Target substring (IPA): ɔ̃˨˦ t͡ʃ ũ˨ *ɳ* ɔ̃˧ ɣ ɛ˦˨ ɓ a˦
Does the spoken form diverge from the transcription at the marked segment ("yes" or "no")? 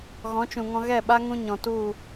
yes